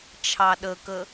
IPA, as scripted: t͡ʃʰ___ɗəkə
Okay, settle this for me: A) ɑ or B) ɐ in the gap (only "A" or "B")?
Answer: A